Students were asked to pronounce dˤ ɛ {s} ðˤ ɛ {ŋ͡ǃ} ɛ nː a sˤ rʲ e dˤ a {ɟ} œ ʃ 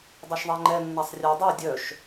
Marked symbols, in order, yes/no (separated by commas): no, yes, no